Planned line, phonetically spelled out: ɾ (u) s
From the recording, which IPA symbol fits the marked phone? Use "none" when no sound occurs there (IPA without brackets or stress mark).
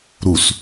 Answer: u